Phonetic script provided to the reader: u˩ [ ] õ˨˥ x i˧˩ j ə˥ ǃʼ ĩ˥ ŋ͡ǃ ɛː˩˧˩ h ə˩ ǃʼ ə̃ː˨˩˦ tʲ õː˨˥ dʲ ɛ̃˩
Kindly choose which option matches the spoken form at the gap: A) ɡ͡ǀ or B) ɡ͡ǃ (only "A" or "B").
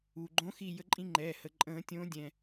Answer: B